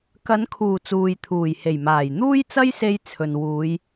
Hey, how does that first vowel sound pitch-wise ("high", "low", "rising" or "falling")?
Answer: rising